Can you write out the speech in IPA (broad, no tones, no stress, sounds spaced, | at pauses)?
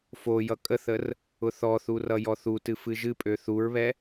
f o j ʌ kʼ ə θ ə r | ʊ θ ɔ θ u r ʌ j ɔ θ u t ɨ f ɨ ʒ ɨ pʼ ø θ u ɹ β ɛ